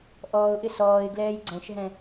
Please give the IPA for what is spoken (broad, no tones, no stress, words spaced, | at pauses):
ʔɔːʊ̯ʔɪ sɔːɪ̯ɡlɛːj ɡ͡ǀɛ̃ʃɦɛ̃